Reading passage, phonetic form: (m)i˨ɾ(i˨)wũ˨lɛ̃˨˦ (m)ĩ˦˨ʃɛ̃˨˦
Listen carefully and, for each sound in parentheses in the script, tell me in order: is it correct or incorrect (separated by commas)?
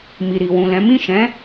correct, correct, correct